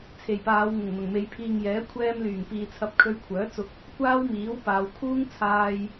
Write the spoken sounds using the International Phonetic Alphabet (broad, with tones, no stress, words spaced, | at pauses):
t͡sʰe˨˩jpaː˨˧wŋʊ˨˩ŋn̪ʊ˨˩ŋ me˨˧jpʰiː˨ŋjɛː˨˥ kʷʰɛː˧m lyː˨˩ŋpiː˨t͡sʰɐ˧p̚ kʰɵ˧ɥkʷʰœː˨˥ t͡sʊ˧k̚ | kʷaː˥wmiː˨˥w paː˨˧w kʰuː˥ŋ t͡sʰaː˧j